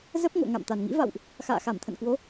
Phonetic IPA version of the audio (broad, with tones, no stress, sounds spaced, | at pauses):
z ə˦˥ p̚ ŋ o̰˧˨ ŋ a̰˧˨ m t̪ a˨˩ n ŋ ḭ˧˥ v a̰˧˨ w ʔ | x a̰ː˧˨ x a˧˩ m t̪ʰ ə̰˧˨ n k w o˨˦